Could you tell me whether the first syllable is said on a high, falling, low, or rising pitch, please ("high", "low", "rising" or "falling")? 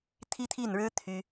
high